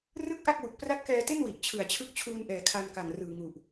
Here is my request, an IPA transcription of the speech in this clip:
r ɯ˥˩ k̚ ʔ a˥˩ k̚ w u˨˩ k̚ p r a˦˥ t̚ k ɛː˧ t e˥˩ n w i˨˩ ʔ t͡ɕʰ ɯ˨˩ a̯ t͡ɕʰ ɯ˦˥ k̚ t͡ɕʰ uː˧ n ʔ ɛː˨˩ kʰ a˧ n k a˨˩ ŋ r ɯː˨˩ ŋ u˨˩ ʔ

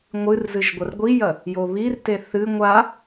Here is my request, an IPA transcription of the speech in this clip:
ŋʷ ɨ r z ɨ ʒ ɡʷ ɐ r ɡʷ i j ɐ | j o β i r t e θ ɨ ŋʷ a

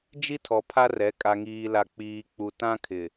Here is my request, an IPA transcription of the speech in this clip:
d͡ʒ i˦ tʰ ɔ˨ pʰ a˦ r ɛ˨˦ kʼ a˨ ŋ iː˨ l a˨ k͡p iː˨ k͡p u˨ t ã˦ kʰ ɪ˨

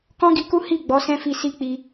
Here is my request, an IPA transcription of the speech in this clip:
k ɔ̃˦ ɡ i˧ k u˦ h i˦˨ ɡ͡b ɔ˨˦ s ɛ̃˦ f i˧ s i˦ k͡p i˧

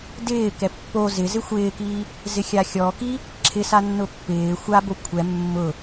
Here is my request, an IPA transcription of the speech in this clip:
d ɪː k ɛ pː o z ɪ z ɪ xʷ ɪː k i | z ɪ xʲ a xʲ ɔ k i | ǁʰ ɪ s a nː ʊ pː ɪː xʷ a b o kʷʰ ɛ mː ʊ

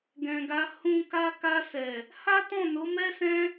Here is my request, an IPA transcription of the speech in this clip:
ɡ ɛ̃˨ ɡ a˧ h ũ˦ k a˧ k a˧ s ɛ˨ | h a˦ t ɔ̃˦˨ n o˨˦ m ɛ˦ s ɛ̃˦

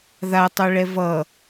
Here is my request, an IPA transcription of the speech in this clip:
ð a tˤ u ɭ ɛ v ʌ

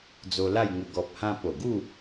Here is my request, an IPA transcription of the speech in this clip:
d͡z o˧ l a˥˧ j ŋ ə˧ ɡ ɔ˨ p̚ h ã˧ p o˨˩ ɡ u˥˧

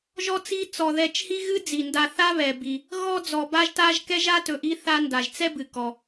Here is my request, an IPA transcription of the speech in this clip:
ʒ ɔ˥ t͡s i˦ t͡s ɔ˨ ð ɛ˨ t͡ʃ h i˦ ɣ ɨ˦ d͡z i˩ n d a˨ θ a˦ β ɛ˩ b i˩ | ɣ ɔ˥ d͡z ɔ˨ b a˥ ʒ t a˥ ʒ k ɛ˥ ʒ a˥ t ɵ˨ ʔ i˦ θ a˦ n d a˩ ʒ t͡s ɛ˥ b ɨ˩ k ɔ˩

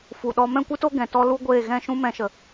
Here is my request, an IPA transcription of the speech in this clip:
f u˨ ɗ ɔ˦ m ɛ̃˦˨ kʷ ɨ˦ t o˦ ɡ ɛ̃˨ t ɔ˦ l u˦ ɡʷ eː˦˨ ɣ ɛ̃˦˨ ʃ ũ˦ m ɛ̃˧ ʃ ə˨

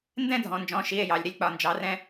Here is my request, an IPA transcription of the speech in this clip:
n d ɛ̃˥˧ dʱ ɔ̃˩˧ n d͡ʒ ɔ̃˩˧˩ ʃ i˩˧˩ e̯ j ɑ˩˧ lʲ ɾ i˧ lʲ k͡p ɒ˩˧˩ n d͡ʒ ɑ˩˧ r ɛ̃˧

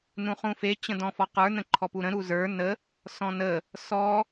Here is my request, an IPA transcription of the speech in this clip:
n ũ χ ũ f e t͡ɕ ə̃ d ɔ̃ f ɔ q ə˞ n ə̃ ǃʰ ɔ p u ɾ ə̃ ɾ u z ə˞ n ə | s ɔ̃ n ə | s ɔ

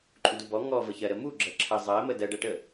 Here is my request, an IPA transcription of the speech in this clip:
ǃʼ u d u b ɔ ŋ ɔ v ə ç ɜ ɾ ə m u ɡ͡ǁ ɜ ǁʰ ə zˤ ɜ m ə d ɜ ɖ ɜ ʈ ə

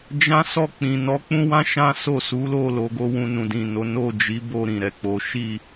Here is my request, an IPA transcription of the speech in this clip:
d͡ʒ ã˦ s ɔ˦˨ k͡p ĩ˨ n ɔ˨˦ k͡p ũ˦ w ã˦ ʃ ã˦ s o˦˨ s u˨˦ l o˦˨ l o˧ ɡ o˦ w ũ˧ n ũ˨ d ĩ˨ n o˨˦ n o˦˨ d͡ʒ i˨˦ b o˦˨ ɾ ĩ˨ ɾ ɛ˨ k͡p o˨˦ ʃ i˦˨

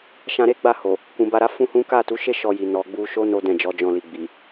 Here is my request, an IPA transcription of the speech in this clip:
ʃ ã˧ ɾ e˦ ɡ͡b a˦˨ h o˨ | k ũ˨ b a˧ ɾ a˦ f ũ˦ h ũ˦ k a˦˨ t u˨˦ ʃ e˦ ʃ ɔ˧ j i˨ n ɔ˨ ɡ͡b u˧ ʃ o˦ n o˦ d ɛ̃˦˨ d͡ʒ ɔ˨˦ d͡ʒ ɔ̃˦˨ l i˧ ɡ͡b i˨

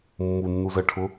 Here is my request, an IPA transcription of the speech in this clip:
mː u nː u z ɜ ʈʰ ʊ

